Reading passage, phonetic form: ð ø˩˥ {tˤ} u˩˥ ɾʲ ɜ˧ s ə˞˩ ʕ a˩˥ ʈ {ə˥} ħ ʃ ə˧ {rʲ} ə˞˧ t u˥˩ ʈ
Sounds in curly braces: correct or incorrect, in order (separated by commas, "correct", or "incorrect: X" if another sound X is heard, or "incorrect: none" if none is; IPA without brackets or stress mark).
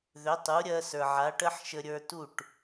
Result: correct, correct, incorrect: ɾʲ